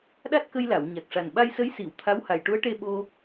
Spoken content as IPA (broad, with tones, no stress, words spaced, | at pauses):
ɗa˦˥t̚kə˧jla˨˩˨w ɲa˨˩k̚ʂa˨˩n ɓa˧jsə˧˥jsi˨˩˨w t̪ʰa˧˥w ha˨˩jʈu˧˥ə̯ʈe˧ ɓo˧